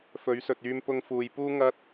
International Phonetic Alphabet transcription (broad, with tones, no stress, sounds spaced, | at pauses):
f ɵ˨˥ ɥ s ɵ˨ t̚ yː˧ m p ʊ˧ ŋ f uː˨ j p uː˥ ŋ ɐ˥ t̚